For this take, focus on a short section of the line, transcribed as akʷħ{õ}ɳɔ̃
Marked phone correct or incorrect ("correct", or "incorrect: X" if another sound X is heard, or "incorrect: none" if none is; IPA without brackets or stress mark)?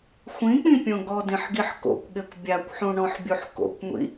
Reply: incorrect: ũ